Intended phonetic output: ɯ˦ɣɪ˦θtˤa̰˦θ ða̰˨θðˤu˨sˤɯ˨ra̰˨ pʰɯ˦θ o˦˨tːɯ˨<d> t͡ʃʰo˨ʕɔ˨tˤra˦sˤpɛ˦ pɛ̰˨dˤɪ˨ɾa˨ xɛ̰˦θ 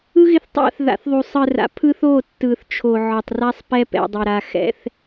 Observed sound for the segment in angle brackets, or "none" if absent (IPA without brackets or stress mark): θ